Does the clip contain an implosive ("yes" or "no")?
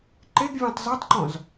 no